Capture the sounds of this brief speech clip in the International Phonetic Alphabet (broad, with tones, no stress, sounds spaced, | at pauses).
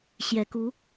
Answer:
ɕ j ɛ˧˥ k u˧˥